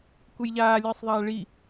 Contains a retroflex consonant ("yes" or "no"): yes